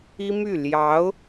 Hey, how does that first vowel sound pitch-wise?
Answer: high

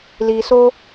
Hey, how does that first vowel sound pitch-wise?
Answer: low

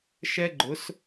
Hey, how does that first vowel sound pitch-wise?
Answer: high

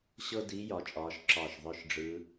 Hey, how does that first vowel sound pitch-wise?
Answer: high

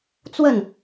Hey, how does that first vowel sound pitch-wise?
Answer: falling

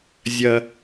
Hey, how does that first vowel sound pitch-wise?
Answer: high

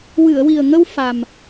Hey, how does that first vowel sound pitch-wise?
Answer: low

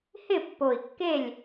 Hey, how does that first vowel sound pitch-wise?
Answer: falling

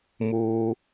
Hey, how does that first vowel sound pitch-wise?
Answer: low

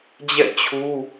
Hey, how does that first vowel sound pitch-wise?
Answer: falling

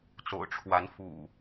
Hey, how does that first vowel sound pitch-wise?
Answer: low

